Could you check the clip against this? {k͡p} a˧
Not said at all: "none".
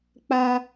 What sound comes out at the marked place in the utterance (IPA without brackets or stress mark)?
k͡p